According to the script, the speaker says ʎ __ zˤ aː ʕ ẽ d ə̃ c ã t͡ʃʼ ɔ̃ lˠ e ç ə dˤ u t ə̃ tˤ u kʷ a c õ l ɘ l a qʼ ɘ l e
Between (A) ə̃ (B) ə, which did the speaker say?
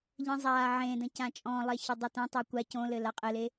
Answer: A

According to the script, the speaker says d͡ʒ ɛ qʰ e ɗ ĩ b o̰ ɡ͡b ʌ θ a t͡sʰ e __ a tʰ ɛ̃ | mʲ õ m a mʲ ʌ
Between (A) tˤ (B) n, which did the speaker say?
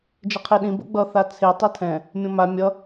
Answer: A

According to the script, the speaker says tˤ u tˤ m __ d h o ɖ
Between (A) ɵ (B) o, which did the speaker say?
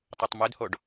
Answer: A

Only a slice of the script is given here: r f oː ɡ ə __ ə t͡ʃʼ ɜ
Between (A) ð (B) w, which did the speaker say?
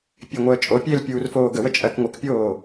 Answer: B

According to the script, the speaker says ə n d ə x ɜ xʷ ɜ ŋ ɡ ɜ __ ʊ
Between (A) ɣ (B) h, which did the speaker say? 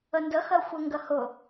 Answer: B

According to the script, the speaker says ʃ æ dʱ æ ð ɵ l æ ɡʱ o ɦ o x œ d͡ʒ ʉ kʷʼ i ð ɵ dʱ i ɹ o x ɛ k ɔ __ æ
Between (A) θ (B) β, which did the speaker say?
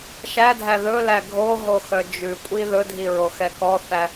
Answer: A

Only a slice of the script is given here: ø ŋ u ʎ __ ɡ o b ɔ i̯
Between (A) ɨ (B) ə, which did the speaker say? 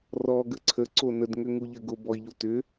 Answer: B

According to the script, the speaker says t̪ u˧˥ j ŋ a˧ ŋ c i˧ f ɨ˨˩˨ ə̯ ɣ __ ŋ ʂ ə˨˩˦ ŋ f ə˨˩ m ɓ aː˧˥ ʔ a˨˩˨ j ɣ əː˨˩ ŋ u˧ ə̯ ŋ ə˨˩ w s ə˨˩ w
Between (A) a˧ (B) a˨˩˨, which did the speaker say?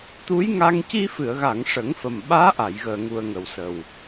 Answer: B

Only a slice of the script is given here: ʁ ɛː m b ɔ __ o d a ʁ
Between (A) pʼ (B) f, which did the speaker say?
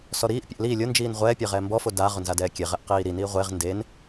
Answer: B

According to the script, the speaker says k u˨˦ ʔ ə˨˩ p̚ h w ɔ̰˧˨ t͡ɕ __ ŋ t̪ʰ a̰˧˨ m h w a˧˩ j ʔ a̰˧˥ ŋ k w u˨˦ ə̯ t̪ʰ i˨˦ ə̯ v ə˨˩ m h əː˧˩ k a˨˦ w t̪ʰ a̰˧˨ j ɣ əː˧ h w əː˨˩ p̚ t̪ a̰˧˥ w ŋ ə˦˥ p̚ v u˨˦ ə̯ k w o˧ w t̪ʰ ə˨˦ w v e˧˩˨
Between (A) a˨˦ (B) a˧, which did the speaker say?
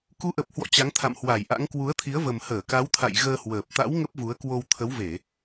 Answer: A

